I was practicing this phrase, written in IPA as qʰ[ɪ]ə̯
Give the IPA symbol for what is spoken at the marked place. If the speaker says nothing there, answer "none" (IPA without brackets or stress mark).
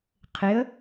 ɪ